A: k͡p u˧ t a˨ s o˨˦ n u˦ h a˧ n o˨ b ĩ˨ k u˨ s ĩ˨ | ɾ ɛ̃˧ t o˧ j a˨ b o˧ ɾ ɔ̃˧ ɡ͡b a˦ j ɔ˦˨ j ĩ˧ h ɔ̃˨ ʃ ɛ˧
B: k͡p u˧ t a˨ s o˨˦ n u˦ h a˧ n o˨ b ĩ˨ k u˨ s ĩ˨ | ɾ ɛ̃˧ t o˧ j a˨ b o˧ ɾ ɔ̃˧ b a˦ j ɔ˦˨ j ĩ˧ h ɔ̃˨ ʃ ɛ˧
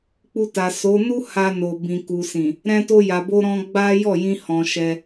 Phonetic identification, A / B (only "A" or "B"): A